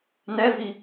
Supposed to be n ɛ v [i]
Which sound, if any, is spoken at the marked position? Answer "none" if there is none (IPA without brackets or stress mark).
i